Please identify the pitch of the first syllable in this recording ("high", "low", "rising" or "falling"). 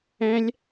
high